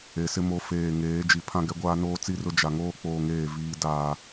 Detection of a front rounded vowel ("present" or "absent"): absent